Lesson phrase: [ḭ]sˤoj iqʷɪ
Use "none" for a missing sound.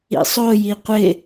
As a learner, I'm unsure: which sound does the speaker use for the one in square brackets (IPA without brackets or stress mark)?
ḭ